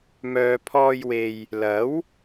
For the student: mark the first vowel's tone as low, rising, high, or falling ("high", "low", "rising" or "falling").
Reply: low